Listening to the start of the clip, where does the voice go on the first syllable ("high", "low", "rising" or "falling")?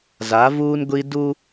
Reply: rising